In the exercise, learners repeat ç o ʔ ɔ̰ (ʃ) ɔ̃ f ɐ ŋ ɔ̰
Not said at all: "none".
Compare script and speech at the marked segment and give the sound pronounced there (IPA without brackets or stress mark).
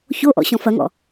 ɕ